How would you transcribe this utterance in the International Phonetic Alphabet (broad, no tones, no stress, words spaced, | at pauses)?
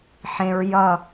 ħẽɹ jʌ